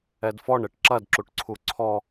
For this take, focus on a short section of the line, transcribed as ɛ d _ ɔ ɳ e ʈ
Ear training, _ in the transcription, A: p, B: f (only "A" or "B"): B